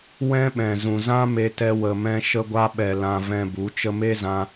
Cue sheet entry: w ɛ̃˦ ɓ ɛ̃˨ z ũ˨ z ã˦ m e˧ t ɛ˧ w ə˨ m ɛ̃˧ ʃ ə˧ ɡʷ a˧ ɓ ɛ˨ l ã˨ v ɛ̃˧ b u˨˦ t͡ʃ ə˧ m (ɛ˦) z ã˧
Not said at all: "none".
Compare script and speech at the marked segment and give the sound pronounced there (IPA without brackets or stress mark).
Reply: e˦